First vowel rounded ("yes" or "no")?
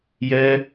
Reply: no